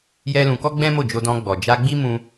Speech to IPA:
j ɛ˦ l ũ˧ k ɔ˦ ɡ͡b ɛ̃˦ m o˦˨ d͡ʒ o˧ d ɔ̃˧ ɡ͡b ɔ˨ d͡ʒ a˧ ɡ͡b i˦ m ũ˦

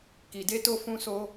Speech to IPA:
k i˨ d e˧ t o˧ f ũ˧ s o˧

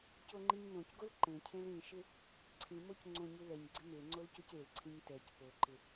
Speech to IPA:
c o ŋ͡ǃ i ɲ n õ c ɡ o l ǃ ẽ cʰ ẽ l ĩ ʃ ɪ | ǀʰ ĩ m o c ŋ͡ǀ õ ɲ u l ɛ ɲ ɡ͡ǀ ɪ m e ŋ͡ǀ o l c o c e l ǀʰ ĩ ɲ t ɛ c p o ǃ ɪ

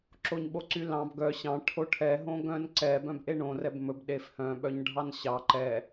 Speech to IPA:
ǁ o ɲ ɓ o ǀ y l ɑ̃ b ɡ œ ɕ ɑ̃ ʈʰ o ʈʰ ɛ ɦ õ ɡ œ̃ n ǀ ɛ b œ̃ b ʔ e ɳ õ r ɛ b m ɵ b ɗ e f h œ̃ ɓ œ ɲ ɖʱ ɑ n ɕ ɑ ǃ ɛ

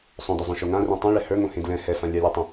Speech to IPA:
sˤ õ d ə˞ zˤ õ ʃ o ŋ ã r ẽ tˤ õ ɭ ɛ h ə˞ ŋ õ h ẽ d l ɛ̃ h ɛ f ã lʲ a lʲ ə˞ tˤ õ

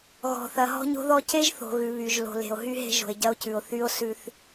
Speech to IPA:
ɣ ɔ̤˨ θ ɐ˨ ɦ ɔ̤˦ ɲ o̤˦ ð ɔ˦ c e˦ ʒ θ o̤˨ ɣ ʉ˨ β y˨ ʒ l o̤˨ l e̤˨ o̯ ɦ y˦ ɦ e̤˦ ʒ o̤˨ e̯ ɟ ɐ˦ o̯ c ʉ˨ o̯ θ y˦ o̯ s ʉ˦ θ

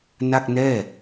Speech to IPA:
n a˥˩ k̚ n ɛː˥˩

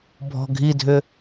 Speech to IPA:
bʱ ɔ̤ ɡʱ i dʱ ʏ

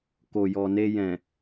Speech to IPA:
k o˨ j ɔ˨ n e˧ j ɛ̃˨

